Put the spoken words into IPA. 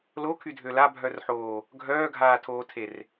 l o kʰ y dʱ ø l a bʱ œ r ħ oː | ɡʱ œː ɡʱ aː tʰ oː tʰ e r

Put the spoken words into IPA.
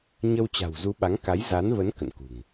ɲ ə˧ w t͡ɕ a̤˨˩ w z u˨˦ ɓ a˨˦ ŋ k a˨˦ j z a˨˦ n v ə˨˦ n k ə̰˧˨ n k ṳ˨˩ ŋ

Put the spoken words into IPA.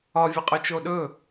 ɒ vʲ ɛ qʼ y t͡ʃ o ɗ ɵ

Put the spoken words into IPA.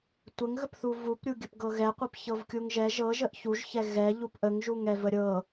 tʷ ə ŋ ɣ ə p θ u v u p ɾʲ u ɡʲ ə p ɡ ɤ ɣ ɛ qʷ ɤ p ç ɤ v kʲ u ŋ ʒ ɛ ʒ ɤ ʒ ə ʔ ç u ʒ ç ɛ ɣ ɛ ʎ u p ʔ ə ŋ ʒ u ŋ ɛ v ə ɾʲ ɤ

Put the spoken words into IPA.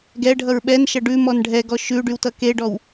ɡ ɛ ɖʱ ʌ ɹ ɓ ɛ n ʃ ʌ ɖ ʉ m ɔ n ɖʱ ɛ ɡ ɔ ʃ ʉ ɖ y w t ʌ k e ɖ ɔ w

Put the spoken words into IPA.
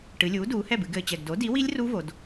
ʈ ɨ˩˧ lʲ uː˩˥ d uː˩˧ h ɛ˥˩ b ɨ˩˧ ɡ ɘː˨˩ t͡ɕ ɛ˨˩ ɡ d o˩˥ d i˩˥ w i˦˥ lʲ r u˦˥ v o˩˧ d

